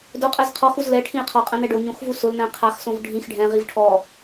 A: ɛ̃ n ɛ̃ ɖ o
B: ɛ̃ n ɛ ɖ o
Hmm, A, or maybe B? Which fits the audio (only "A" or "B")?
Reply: B